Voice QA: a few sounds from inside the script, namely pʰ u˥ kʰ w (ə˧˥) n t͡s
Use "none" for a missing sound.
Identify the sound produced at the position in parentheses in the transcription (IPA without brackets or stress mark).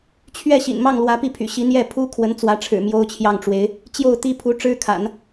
ə˧˥